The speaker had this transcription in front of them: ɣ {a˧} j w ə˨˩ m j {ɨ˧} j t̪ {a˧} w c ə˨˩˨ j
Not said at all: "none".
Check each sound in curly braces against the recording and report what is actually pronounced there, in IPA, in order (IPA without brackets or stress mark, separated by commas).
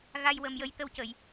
a˧, ə˧, ə˧